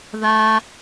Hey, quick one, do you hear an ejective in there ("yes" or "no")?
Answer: no